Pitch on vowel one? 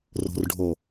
low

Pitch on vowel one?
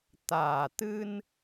low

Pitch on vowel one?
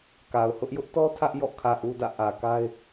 low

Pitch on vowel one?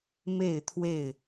falling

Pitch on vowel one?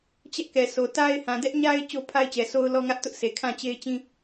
high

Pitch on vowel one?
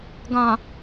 low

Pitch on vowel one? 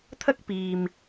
high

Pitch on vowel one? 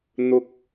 high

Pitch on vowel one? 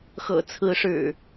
low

